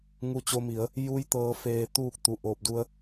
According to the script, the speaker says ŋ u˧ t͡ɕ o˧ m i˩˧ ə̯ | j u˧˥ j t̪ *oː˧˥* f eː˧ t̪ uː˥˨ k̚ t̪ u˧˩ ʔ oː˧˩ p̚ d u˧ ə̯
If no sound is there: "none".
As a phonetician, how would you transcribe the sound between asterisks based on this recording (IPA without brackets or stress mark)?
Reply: ɤː˧˥